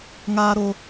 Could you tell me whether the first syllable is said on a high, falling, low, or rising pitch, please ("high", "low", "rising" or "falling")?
high